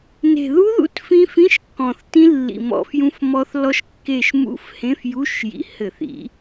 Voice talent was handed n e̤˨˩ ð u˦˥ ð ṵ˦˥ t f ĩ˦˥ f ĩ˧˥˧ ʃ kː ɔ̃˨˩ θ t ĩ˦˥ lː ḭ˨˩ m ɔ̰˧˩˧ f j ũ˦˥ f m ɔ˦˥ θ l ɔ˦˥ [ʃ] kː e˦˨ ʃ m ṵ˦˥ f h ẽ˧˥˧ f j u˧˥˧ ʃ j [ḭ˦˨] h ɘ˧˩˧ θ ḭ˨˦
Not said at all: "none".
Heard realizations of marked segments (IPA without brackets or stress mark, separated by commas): ʃ, ḭ˨˩